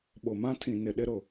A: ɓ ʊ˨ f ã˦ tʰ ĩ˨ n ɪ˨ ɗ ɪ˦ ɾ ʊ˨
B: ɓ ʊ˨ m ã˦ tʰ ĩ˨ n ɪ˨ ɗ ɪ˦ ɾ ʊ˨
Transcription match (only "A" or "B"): B